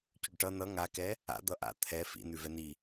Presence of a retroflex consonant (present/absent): present